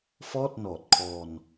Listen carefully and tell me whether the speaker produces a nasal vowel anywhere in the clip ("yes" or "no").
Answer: no